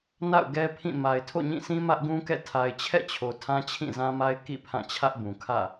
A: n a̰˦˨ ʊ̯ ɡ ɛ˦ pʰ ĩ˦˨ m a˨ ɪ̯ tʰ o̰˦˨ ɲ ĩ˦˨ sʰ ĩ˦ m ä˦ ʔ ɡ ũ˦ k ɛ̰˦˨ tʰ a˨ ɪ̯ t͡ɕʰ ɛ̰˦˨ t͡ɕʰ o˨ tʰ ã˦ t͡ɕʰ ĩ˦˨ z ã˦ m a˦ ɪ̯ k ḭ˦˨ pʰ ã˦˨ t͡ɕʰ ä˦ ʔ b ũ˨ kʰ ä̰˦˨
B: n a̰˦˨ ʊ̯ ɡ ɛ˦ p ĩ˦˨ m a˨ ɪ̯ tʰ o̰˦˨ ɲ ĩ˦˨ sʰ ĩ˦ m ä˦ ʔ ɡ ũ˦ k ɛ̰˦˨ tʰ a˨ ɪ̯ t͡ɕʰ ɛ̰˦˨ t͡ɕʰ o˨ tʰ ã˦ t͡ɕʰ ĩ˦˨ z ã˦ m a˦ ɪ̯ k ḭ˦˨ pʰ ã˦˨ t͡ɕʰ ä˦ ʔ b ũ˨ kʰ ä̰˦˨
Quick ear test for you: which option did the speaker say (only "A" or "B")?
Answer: A